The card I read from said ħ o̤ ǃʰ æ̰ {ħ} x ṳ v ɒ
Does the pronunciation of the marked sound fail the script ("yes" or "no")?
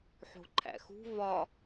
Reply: yes